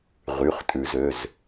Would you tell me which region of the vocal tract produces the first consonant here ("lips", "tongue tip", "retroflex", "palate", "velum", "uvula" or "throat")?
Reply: uvula